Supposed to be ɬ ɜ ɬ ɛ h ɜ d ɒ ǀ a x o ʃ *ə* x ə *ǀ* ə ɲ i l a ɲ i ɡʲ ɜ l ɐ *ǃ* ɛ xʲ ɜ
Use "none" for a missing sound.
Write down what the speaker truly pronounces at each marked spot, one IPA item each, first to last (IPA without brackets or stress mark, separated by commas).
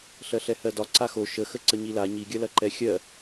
ə, ǀ, ǃ